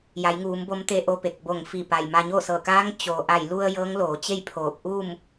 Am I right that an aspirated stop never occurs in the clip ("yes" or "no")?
no